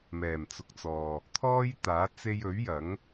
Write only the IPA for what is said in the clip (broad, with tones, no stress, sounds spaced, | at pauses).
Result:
m ɛː˨˩ m t͡s ʊ˨ k̚ t͡s ɔː˨ | t̪ʰ ɔː˥ j t̪ aː˨˥ t͡s e˧ j ɵ˨˥ ɥ j ɐ˨˥ ŋ